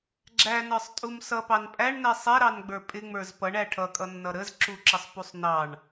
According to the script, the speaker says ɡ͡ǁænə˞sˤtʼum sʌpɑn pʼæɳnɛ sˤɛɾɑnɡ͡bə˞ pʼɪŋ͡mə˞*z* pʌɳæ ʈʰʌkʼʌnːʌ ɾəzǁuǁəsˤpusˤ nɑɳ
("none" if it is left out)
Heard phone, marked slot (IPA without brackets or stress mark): z